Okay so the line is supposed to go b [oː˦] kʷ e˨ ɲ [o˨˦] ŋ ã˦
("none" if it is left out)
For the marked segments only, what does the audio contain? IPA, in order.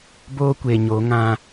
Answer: oː˦, o˨˦

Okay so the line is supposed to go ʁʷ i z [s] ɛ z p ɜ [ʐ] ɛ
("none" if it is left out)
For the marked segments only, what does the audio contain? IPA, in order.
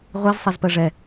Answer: sˤ, ʐ

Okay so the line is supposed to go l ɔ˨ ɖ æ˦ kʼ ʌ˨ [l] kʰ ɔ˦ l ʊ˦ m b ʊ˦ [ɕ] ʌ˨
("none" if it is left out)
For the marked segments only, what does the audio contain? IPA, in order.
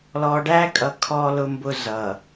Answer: none, z

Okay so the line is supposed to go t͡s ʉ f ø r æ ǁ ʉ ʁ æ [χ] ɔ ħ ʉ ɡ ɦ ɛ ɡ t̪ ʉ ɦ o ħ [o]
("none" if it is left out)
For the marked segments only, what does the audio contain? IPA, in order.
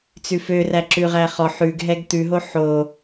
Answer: χ, o

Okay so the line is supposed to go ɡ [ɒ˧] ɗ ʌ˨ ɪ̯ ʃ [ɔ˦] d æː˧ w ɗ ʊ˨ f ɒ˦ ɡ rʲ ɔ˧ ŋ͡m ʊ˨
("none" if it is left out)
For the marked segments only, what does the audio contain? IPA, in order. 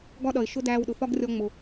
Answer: ɒ˦, ʊ˦

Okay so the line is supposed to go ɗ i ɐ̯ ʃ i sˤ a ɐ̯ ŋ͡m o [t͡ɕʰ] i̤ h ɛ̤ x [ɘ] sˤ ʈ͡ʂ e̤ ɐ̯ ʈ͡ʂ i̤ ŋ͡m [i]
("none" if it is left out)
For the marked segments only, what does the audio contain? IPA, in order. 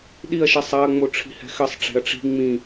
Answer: ʈ͡ʂʰ, ɘ, ĩ

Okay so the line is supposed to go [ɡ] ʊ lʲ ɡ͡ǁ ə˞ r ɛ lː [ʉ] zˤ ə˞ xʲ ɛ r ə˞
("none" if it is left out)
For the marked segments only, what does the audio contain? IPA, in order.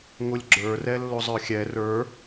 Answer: ŋ, ʊ

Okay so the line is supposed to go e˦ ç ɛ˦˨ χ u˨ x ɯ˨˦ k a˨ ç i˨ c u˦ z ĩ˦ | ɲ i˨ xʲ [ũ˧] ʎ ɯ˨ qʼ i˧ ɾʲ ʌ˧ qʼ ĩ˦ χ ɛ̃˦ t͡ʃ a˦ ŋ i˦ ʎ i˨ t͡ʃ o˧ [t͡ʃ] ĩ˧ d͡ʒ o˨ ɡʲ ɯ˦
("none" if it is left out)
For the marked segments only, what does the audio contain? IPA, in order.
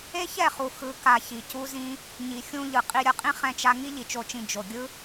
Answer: ũ˧, t͡ʃ

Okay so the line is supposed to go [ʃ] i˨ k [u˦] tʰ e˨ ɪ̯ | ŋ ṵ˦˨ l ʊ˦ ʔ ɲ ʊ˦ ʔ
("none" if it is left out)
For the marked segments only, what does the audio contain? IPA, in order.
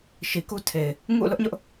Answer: ʃ, u˦

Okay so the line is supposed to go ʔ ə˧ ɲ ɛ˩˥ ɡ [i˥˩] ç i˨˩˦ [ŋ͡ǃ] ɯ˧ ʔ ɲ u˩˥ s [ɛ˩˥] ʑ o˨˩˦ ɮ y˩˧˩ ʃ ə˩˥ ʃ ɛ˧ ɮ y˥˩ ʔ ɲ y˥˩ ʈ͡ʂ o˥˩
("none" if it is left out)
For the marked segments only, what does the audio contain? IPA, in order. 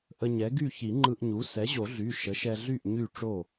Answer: y˥˩, ŋ͡ǃ, ɛ˩˥

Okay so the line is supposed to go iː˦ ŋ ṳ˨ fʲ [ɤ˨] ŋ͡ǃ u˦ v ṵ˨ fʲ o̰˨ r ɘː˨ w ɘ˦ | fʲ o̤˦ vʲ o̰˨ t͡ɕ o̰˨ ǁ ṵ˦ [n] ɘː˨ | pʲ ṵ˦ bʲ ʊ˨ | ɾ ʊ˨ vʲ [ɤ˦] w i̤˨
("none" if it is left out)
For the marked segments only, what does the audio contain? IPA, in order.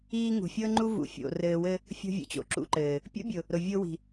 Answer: ɤ˦, ǃ, o˦

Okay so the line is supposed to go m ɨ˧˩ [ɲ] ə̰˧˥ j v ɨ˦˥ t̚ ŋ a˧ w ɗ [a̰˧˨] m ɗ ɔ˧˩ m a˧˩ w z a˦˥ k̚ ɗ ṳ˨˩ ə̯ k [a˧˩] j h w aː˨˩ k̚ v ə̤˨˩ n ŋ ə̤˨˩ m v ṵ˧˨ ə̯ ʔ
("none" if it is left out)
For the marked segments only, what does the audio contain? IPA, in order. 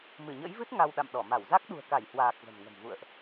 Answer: ɲ, a̰˧˨, a˧˩

